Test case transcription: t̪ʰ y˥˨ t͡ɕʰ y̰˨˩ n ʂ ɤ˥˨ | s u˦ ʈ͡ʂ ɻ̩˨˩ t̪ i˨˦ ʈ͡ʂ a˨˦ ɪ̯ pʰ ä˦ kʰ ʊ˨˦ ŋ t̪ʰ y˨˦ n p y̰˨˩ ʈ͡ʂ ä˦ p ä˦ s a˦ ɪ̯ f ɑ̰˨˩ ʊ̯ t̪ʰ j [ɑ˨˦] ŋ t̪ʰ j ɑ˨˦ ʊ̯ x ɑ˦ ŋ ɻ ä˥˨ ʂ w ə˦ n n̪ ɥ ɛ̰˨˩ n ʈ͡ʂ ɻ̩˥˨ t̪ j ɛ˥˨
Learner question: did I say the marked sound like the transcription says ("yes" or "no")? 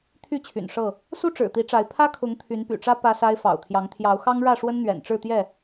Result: yes